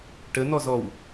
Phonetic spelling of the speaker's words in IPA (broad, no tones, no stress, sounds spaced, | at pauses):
ʈ ə n̪ ɔ z ɔ w